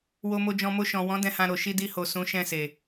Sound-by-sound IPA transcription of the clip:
wo˧mo˧d͡ʒɔ̃˧ mo˧ʃɔ̃˨wɔ̃˨˦ dɛ̃˧hã˧ɾo˨ ʃi˧di˧ho˨ sũ˨˦ʃɛ̃˦˨se˨

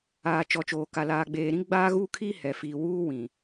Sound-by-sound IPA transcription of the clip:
aː˨ t͡ʃɔ˨t͡ʃoː˨ka˨ laː˨ɡ͡beː˨ ɾĩ˦ɡ͡baː˦ɣuː˦kʰiː˦ hɛ˨ fiː˨wuː˦wĩ˨

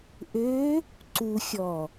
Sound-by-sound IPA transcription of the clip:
ʔø | ǀuxʲɔ

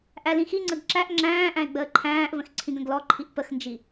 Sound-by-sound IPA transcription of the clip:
ʔælĩxiŋ͡ǀəɡ ǁæʔ ŋ͡ǁæ̃ːʔæ̃ɪ̯ ɡ͡bəːǃʰæ̃ːʔvə̃x ǀʰĩɡə̃ɡlɔǃʰiʔ pəxnd͡ʒi

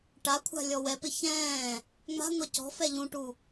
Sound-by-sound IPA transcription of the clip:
ʈakʷʰa̤ lʲɔwɛpɪ çɛ̃ː | ŋ͡ma̤ŋʷɛ cɔ̤fɛ ʎũʈu

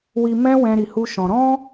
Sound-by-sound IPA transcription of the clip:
wi˧mɛ̃˦ wɛ̃˦ɾi˧hu˦ʃɔ̃˧ ɾɔ̃˦

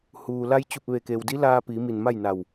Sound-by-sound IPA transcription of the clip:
huː˩la˧jt͡ɕu˧˩p̚ ʋe˧˩ke˩wdi˧˥ laː˧pi˩˧ mi˧˩nma˥˨jna˧˩w

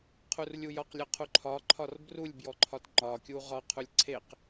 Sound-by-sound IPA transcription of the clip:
qʰurlʲujɒqlʲɒ qʰuǃʰɒǃʰɒr brulʲbjɔǃʰɒt ŋ͡ǃɒkʲu ʁɒqʰulʲ ǀʰeq

